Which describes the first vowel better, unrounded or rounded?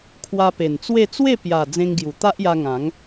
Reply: unrounded